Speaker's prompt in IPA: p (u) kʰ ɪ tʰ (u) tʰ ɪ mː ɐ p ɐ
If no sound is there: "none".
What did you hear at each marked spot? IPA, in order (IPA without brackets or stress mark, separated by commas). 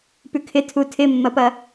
ʉ, u